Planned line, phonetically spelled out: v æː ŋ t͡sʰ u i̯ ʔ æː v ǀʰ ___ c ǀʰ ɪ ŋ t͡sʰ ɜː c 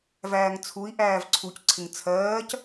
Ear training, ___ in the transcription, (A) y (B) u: B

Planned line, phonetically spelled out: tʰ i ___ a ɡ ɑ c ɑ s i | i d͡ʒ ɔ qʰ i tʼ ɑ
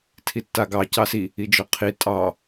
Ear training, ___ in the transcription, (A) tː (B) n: A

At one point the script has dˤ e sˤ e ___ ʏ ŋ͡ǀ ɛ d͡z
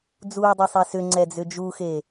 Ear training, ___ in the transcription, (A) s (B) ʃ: A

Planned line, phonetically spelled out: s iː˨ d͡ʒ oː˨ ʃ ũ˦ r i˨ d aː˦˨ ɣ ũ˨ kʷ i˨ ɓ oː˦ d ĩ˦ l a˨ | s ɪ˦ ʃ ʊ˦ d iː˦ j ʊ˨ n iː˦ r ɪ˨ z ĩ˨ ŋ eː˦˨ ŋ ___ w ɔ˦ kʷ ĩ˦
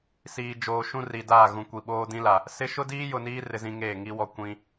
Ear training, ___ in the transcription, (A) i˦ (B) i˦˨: A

